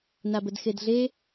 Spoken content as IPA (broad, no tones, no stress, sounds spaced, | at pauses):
n a b ə d x e d ɮ e